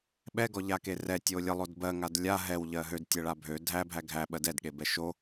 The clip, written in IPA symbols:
ɓɛɡɔʎake rɛtʲo lʲəlˠod bɜŋad lʲa ɦɛwʎɜ ɦødtʲɛɭa bʱø dʱæbʱæ ɡʱæɓɜ dɛdɠebɛ ʃo

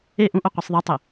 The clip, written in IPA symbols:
e ʔũʔo qʷisˤðˤatˤe

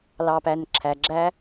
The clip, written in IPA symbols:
lɑ˨pæ˨nǁʰæ˨ ɡ͡ǁæ˦

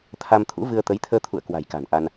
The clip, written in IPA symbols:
t̪ʰa˧mt̪ʰṵ˧˥vɨ˧ə̯ t̪ə˨˦jt̪ʰəː˧t̪ʰṵ˧˨ə̯ kwa̤˨˩jka̤˨˩nʔa˧n

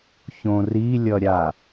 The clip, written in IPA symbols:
çõrilʲʌɾʲa

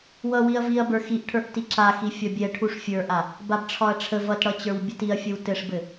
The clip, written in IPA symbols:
wʌwiɐ̯ viɐ̯bə˞ xiʔʈʰə˞ʔ tiǁaxi fʲɒbʲɛ ʈʰuʂfʲə˞ʔa | babʈ͡ʂʰɒɐ̯ʈ͡ʂʰə vʌtɽʌt͡ɕə˞w bʲʌtiɐ̯fʲəw tɘʂbɘ

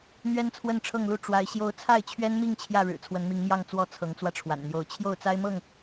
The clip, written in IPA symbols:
n̪ɥɛ˦nt͡sʰwə˥˨nʈ͡ʂʰɤ˥˨ŋlu˥˨ ʈ͡ʂwa˨˦ɪ̯ ɕjo˦ʊ̯ t͡sʰa˥˨ɪ̯t͡ɕʰɥɛ˦nmi˥˨ŋ t͡ɕʰjä˥˨ɻɻ̩˨˩ t͡sʰwə˨˦nmi˨˦ŋmjɑ˥˨ŋ t͡swɔ˥˨ t͡sʰɤ˨˦ŋt͡swä˧ʈ͡ʂʰwa̰˨˩nn̪jo˨˦ʊ̯ t͡ɕʰjo˥˨ʊ̯t͡sa˦ɪ̯mɤ˥˨ŋ

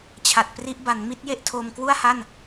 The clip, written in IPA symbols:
t͡ɕʰa˨˩t̚pri˦˥ʔba˩˦n mi˦˥t̚je˥˩ʔtʰo˧m kwu˥˩a̯ha˥˩n

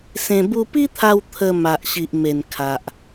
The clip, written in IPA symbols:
sẽ˧ bu˧pi˦t̪ʰa˧w t̪ʰə˧ma˨ʔɕi˨ʔme˨˩n kʰa˨ʔ

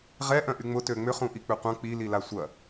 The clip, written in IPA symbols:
ʁɛ ʔœ̃ʔyŋ͡mʊ tøŋ͡mʏ χũʔik͡pʏqʷɐ̃ k͡pi lilasʷɐ

